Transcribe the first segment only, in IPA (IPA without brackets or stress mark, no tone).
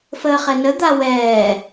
f